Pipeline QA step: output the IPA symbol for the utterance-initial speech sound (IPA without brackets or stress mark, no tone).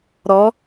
ɾ